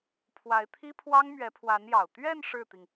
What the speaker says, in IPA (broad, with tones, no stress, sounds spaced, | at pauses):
pʰ w a˧˥ ɪ̯ t̪ʰ i˥ pʰ w ɑ˥ ŋ m ɥ ɛ˧˥ pʰ w a˧˥ n j ɑ˨˩ ʊ̯ t̪ ɥ ɛ˥˧ n ʂ ɻ̩˥˩ t̪ i˩ ŋ